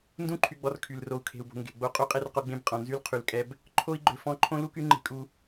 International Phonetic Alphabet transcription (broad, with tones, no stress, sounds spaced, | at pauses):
n d ũ˦ ǃʰ y˨ ɡ͡b ɔ˨ r kʰ y˨ l r o˨ u̯ kʰ e̤˨ u̯ b o̤˨ ŋ ɡ e̤˨ ɡ͡b o˦ qʼ u˦ qʼ e˦ r q o˦ ɡ͡b ẽ˦ b qʼ ɔ̃˨ n z y˦ l qʰ y˨ l kʼ ɛ˦ b | ǃʰ o˦ i̯ ɡ͡ǃ ø˨ f ɔ̃˦ ǃʰ õ˦ l u˦ k y˦ ŋ͡ǃ e̤˦ kʼ u˦